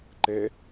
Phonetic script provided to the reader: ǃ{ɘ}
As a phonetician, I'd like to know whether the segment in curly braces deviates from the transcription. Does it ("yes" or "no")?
yes